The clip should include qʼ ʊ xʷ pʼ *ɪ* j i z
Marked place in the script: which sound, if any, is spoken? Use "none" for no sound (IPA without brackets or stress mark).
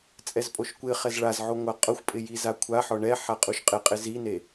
ɪ